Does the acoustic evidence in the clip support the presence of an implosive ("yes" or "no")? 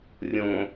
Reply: no